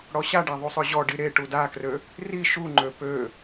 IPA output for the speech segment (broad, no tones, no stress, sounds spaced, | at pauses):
ɽ ɔ ɕ a ɖ a ðˤ u sˤ ø ʑ ɔ ɖ i ɾ e ʈ u d a k r ø | r i ʃ u ŋ͡ǃ ø p ø